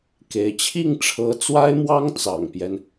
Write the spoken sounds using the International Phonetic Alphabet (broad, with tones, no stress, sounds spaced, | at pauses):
k e˧˥ ɪ̯ t͡ɕʰ i˥˩ ŋ ʈ͡ʂʰ ɤ˧˥ t͡s w a˥ ɪ̯ m w ɑ˥ ŋ t͡s ɑ̰˨˩ ŋ p j ɛ˦ n